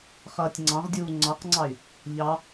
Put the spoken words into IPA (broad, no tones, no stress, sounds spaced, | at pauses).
χ ʌː tʲ ŋ͡ǀ ɑ̃ ʁ dʲ uː ŋ͡ǀ ɑ q ŋ͡ǀ ɑ y̯ | ʎ ɑ